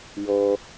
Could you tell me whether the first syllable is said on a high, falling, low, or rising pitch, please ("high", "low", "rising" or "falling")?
high